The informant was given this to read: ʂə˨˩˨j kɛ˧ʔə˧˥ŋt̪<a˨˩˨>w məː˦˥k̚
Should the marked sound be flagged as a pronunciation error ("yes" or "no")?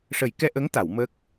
no